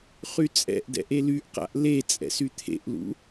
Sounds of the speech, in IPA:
χ y t͡sʼ ɛ̰ ʔ d ɛ̰ ʔ e l y ʔ q a̰ ʔ l e t͡sʼ ɛ̰ s y t̪ʰ ḛ ʔ l ṵ

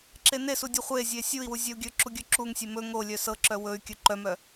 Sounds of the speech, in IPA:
ǁ e n e s u dʲ o χʷ e zʲ e sʲ u i̯ w u zʲ œ u̯ ɡʲ ɵ ǁ u ɡʲ ɵ ǁ u ŋ sʲ e m ɵ ŋ o lʲ œ s ɤ ǁ œ w ɵ y̯ kʲ ɵ ǃ œ m œ

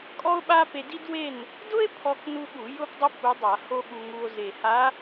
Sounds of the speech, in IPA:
kʼ ɔ˥ o̯ ɓ a˥ p e˧ d i˥ d w e˥˨ n | d ʊ˥ e̯ pʰ ɔ˥ k n u˥ ɠ u˧˩˧ j ʊ˥ p dˤ ʊ˥ p u˧˥ dˤ a˧˩˧ h o˥ ɠ u˧ ŋ u˧ o̯ z e˨˩ h a˧˥

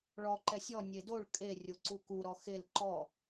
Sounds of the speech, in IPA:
ɭ ɔ ǃ ɛ sʲ ɔ nʲ e d o ɭ kʼ e rʲ o ǀ u k u ɾ ɔ x e l ǃ ɔ

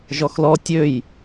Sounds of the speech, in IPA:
ʒ ɔ x l ɔ tʲ ø j

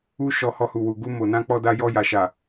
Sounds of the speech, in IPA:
u˦ ʃ ɔ˧ h ɔ˧ h u˨ w u˨ ɡ u˧ m o˨ n ã˧ k͡p ɔ˧ d a˧ j ɔ˧ j a˨ ʃ a˨

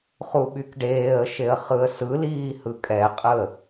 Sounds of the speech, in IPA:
χ u ɓ y k ɖ eː ə̯ ʃ e ə̯ χ ɯ ə̯ s ɯ l iː h ɯ kʼ ɛ qʼ ɯ ə̯

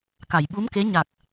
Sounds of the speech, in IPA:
k a˨˩˨ j ɓ u˧˥ m k e˧˥ ɲ a˨˩ k̚

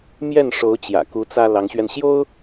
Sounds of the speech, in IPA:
m j ɛ˥˩ n ʂ o˧˥ ʊ̯ t͡ɕ j ä̰˨˩ k u˧˥ t͡s ä˥ l ɑ˧˥ ŋ ɕ ɥ ɛ˧ n ɕ j o˥ ʊ̯

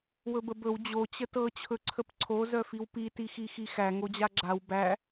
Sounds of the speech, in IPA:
w ɵ b ə b ɵ w d͡ʑ o t͡ɕ ə t ɤ t͡ɕʰ ɵ ǀʰ ə p ǀʰ o z œ f i w p i t i x i x i x æ ŋ o d͡ʑ a ɡ͡ǁ a w b æ

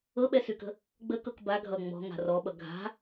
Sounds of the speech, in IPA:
ɤ ɓ ɛ s y k ə̤ | ɡ͡b ə k ɤ k b a ɡʱ ʌ ŋ͡m ɔ̤ ŋ a̤ r ɔ ɓ ʌ ɡʱ a̤

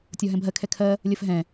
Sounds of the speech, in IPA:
tʲ ɒ ɦ ɛ̃ bʱ ɜ kʰ ɛ kʰ ɜ | lʲ ɜ f ɦ ɛ̃

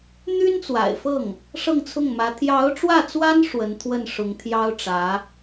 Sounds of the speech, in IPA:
n̪ y˥ n t͡s w a̰˨˩ ɪ̯ f ɤ˥˩ ŋ | ʂ ɤ˥˧ ŋ t͡sʰ ʊ˥˩ ŋ m ä˧˥ t̪ʰ j ɑ˧˥ ʊ̯ ʈ͡ʂ w ä˥˩ t͡s w a˥ n ʂ w ə˧˥ n t̪ʰ w ə˥˩ n ʂ ʊ˧˥ ŋ t̪ʰ j ɑ˥ ʊ̯ ʈ͡ʂ ä˧˥

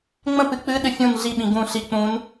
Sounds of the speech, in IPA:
ŋ͡m ə̃ p ɨ k͡p ɨ ɗ ɨ fʲ ũ n ɮ i ɓ ĩ ɡ ũ ɬ i k͡p ũ n

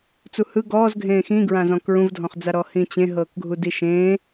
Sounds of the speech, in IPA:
t͡s u h ɯ ɡ ɔː z ɡʱ ẽː x ĩ ɡ ɹ ã z ɔ̃ k ɹ ũ v dʱ ɔ̃ χ d͡z a ɾ ɔ h ĩ t͡ɕ ẽ ɦ ɤː k ɡʱ u d i ʃ ẽː

